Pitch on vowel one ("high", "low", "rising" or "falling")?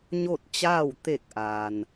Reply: falling